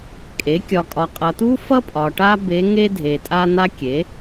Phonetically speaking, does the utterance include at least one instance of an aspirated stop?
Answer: no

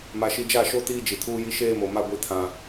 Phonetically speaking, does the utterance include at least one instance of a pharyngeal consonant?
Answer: no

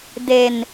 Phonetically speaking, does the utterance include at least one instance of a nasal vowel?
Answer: no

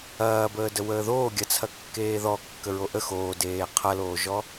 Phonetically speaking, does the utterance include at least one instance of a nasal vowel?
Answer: no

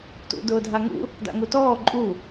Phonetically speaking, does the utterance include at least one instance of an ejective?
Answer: yes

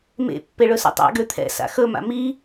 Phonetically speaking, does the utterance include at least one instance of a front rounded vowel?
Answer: yes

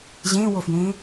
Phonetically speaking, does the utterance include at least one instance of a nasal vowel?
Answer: yes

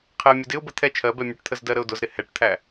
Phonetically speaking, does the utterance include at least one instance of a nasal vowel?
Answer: no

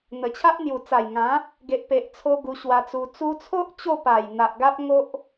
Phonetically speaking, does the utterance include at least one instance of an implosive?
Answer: no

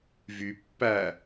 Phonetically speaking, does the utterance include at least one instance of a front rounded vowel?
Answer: yes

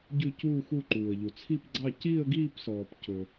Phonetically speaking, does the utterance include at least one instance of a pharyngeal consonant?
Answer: no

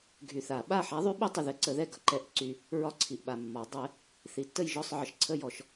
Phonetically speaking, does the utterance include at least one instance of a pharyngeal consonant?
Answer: yes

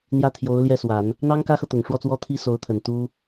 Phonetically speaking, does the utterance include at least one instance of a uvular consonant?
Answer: no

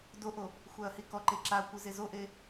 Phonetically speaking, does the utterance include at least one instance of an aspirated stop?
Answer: no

